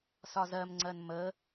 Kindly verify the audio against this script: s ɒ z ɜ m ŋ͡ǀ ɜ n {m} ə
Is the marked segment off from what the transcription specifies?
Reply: no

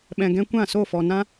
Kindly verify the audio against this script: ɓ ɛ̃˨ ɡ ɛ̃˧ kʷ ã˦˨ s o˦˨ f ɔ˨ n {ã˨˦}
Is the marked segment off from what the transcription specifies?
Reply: yes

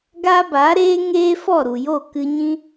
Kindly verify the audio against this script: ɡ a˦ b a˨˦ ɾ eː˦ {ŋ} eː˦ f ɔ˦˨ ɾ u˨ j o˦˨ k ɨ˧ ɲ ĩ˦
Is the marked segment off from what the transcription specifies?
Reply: no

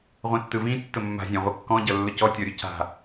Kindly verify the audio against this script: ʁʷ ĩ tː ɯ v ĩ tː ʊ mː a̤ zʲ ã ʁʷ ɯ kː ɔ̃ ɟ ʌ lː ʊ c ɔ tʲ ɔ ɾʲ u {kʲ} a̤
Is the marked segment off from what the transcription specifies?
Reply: yes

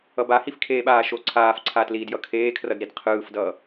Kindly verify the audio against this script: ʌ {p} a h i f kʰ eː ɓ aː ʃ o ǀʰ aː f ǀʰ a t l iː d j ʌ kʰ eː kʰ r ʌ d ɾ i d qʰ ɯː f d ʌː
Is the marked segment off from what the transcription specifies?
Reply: yes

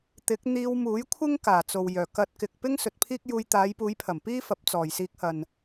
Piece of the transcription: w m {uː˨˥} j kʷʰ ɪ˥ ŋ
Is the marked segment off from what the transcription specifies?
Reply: no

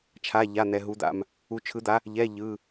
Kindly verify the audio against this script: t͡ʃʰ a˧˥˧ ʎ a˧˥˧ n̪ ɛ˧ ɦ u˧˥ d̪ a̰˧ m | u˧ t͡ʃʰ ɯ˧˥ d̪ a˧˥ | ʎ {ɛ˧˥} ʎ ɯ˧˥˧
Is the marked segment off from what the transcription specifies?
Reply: yes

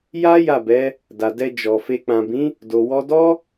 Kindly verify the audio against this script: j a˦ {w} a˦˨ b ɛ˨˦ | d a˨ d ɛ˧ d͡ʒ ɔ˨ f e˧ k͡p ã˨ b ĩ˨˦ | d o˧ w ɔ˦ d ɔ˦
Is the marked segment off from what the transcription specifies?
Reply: yes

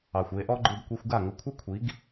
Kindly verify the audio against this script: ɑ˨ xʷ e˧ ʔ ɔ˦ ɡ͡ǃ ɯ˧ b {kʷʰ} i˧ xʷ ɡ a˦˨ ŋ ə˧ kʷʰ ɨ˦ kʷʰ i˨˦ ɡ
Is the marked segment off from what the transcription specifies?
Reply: yes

